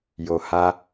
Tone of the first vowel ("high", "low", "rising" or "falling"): low